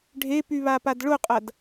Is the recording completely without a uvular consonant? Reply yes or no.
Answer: no